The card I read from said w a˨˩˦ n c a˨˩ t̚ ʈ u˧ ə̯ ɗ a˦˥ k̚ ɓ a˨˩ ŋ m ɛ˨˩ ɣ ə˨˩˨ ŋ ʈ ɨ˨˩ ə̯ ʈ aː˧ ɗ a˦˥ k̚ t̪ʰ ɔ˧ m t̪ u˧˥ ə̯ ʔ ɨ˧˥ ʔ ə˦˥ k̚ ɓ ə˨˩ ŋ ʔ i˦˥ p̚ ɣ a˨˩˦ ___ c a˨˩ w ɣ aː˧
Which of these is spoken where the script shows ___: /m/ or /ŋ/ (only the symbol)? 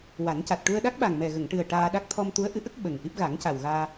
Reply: ŋ